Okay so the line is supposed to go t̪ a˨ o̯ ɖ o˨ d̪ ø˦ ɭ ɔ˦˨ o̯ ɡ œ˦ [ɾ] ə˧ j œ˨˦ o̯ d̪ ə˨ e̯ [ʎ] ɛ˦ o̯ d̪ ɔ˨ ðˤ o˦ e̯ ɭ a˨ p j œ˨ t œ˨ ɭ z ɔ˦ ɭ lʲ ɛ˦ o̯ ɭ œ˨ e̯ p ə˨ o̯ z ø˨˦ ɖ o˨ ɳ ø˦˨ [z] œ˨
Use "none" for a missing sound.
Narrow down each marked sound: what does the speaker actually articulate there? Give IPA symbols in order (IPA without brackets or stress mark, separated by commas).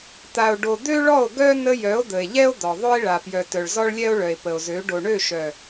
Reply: n, ʎ, ʃ